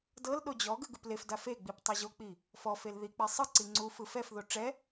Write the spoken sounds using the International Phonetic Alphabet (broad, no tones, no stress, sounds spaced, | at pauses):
d ɤ l ɗ o d͡ʑ ɔ ɡ ɯ ɡ ɯ p l e f d a f e ɡ͡b i p tˤ ɤ ʑ o k͡p i | f ɔ f e l ð i k͡p i sˤ ɯ ǀ i ŋ͡ǀ u f ɯ f ɛ f ð o ʈ͡ʂ ɛ